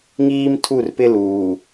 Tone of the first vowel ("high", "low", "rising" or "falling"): high